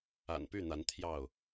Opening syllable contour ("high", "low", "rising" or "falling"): low